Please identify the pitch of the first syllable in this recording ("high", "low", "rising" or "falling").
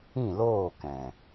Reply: falling